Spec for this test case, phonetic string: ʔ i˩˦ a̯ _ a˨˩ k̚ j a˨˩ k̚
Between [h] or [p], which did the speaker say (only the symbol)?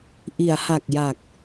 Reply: h